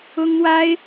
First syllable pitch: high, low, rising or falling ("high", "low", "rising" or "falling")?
high